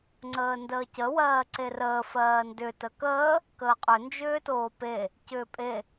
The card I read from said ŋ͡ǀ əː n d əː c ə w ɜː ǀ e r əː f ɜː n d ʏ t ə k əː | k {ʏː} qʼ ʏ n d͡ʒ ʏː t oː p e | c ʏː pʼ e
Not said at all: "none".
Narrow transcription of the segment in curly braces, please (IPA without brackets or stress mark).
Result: əː